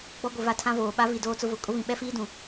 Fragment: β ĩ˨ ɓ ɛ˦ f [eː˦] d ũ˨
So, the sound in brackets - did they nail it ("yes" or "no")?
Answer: no